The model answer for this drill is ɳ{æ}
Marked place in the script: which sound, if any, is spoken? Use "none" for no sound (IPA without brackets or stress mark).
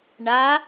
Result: a